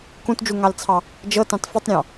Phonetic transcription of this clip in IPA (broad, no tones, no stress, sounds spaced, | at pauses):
k ũ t d͡ʒ u ŋ ɑ l t͡sʰ ɑ | d͡ʒ ɤ t ɑ̃ t f i tˤ ɾʲ ɑ̃